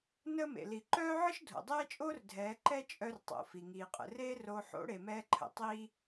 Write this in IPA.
nəː˦mḛ˨ li˨ǃœː˦ʕə˦ʃ dʱo̰˨dˤɛː˦t͡ʃʼoː˦r dʱɛː˨˦ǃɛ˦ t͡ʃʼœ˦rtˤo̰˨fi˨ ŋiː˨qʼə̰˨reː˦roː˧ ħo̰˨˦ɽe˨mɛː˧ǃʰə̰˨ tˤiː˦

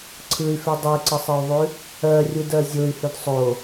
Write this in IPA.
ǀʰɯy̯fe dˤeǀəsˤɯu̯ðˤʉ | ɜrʲudɜ zʲoy̯hʉd sˤo

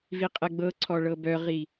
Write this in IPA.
viqʼɛɡ͡bɤǀʰɔ ɭɤbœʁi

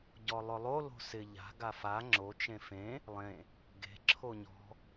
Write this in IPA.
ɟɔlˠʊlˠo lo̤sɪ ʎa̤ ɡafa ŋ͡ǁo t͡ʃẽfẽ | lˠẽ | ɡe̤ ǁʰoɲɔ̤

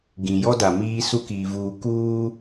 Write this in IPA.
ɡĩ˨jɔ˦da˨ miː˦su˦kiː˨vuː˨ kuː˦

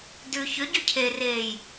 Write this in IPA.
dʉ çʏ ɟʉcʰereːj

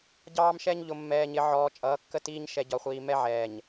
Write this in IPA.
ɟɑː˦mʃɛ˦ɲ ʎʊ˨mːɛː˨ɲɪ˨ʕɔː˨ t͡ʃʼʌː˨˦kːə˦tiː˦ɲ ʃɛ˨ɟɒ˨χʷiː˨mɛ˦ ʕɛː˨ɲ

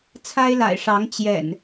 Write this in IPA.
t͡sʰa˦ɪ̯la̰˨˩ɪ̯ʂɑ˨˦ŋ t͡ɕjɛ̰˨˩n

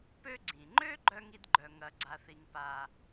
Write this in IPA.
pø˦ɡ͡ǀĩ˩ŋ͡ǃø˥ ɡ͡ǃœ˥ŋi˦dɡ͡ǃœ˨ ŋɐ˨ɡ͡ǀa˨θi˨ŋ pa˩

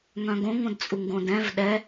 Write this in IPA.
ŋœ̃ɡõŋõd t͡sʼuŋɡõdɛ̃v ɗɛ

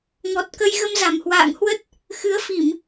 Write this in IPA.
ŋɔ˨˩t̚kə˧j ɣə˧mza˨˩mhwa̰ː˧˨ŋhwə˦˥t̚ | xɨ˨˦ə̯fi˧˩˨m

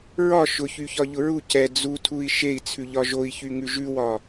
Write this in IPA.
ɹɒ ʃʊçyçɒʎʊ ɹu cɛ d͡zutʰui̯ ʃei̯t͡sʰʉʎɒ ʒoi̯çyŋʉ ʒʉwɒ

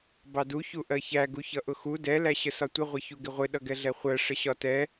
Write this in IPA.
bɑdu çuʔɜçæ ɡuçʌʔʊxu dɛ læɕəsɒtʷə ʁʷɪçuɡɪʁʷɪ ɗʌɡɛɮɛχʷɜ ʂəɕɒtɛ

